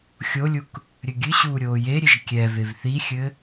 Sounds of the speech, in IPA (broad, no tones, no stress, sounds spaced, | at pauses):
xʲ o lʲ u k | ɾʲ ɘ ɡʲ ɨ ɕ uː ɾʲ oː j e ɾʲ e ʒ kʲ ɛ v e v θ i xʲ ɘ